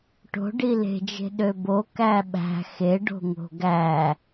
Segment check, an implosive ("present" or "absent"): present